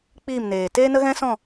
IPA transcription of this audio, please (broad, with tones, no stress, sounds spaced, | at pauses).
k͡p iː˦˨ m n eː˨ t eː˦ n ə˦ ɣ ɛ̃˦ s ɔ̃˦˨